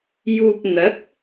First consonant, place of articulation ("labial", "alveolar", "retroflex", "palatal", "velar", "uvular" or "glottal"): palatal